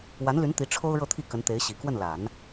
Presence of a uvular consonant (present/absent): absent